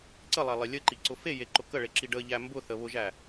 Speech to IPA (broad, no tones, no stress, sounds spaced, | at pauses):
ǀ ə lˠ æ lˠ e lʲ ə ǃ i ǀ ʊ f e j e ǃ ʊ k ə ɭ e ǁ i ɖ ə ʎ æ m b ʊ θ ə β ʊ ʒ æ